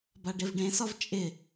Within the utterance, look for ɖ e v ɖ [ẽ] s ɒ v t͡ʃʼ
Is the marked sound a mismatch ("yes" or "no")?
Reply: no